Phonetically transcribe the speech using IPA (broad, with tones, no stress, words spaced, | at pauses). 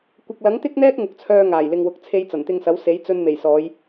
kʷɪ˨k̚lɐ˨˥ŋt̪ɪ˥k̚n̪ɛː˥k̚ ŋʊ˨˥k̚t͡sʰœː˧ ŋaː˨˩jlɪ˨ŋwʊ˨k̚ t͡sʰe˧jt͡sɐ˨˩nt̪ɪ˧ŋsɐ˨˥w se˨˥jt͡sɵ˧nme˨˩jsɔː˨˧j